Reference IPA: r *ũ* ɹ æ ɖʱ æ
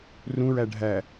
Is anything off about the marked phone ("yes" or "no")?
no